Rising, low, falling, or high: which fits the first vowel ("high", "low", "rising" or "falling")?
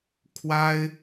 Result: high